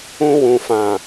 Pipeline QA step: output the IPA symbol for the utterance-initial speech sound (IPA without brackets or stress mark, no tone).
ũ